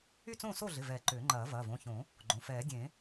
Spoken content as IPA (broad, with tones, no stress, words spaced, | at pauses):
y˥˨t͡sõː˥˨so˥˨ɮɪ˩˧˩ vɛ˨˩˦ ǃʏː˨˩˦ŋ͡ǃɐː˨˩˦ vɐː˩˧˩võ˩˧˩çõ˨˩˦ | ɡ͡ǃõ˩˧˩ fɛː˨˩˦dʲẽ˨˩˦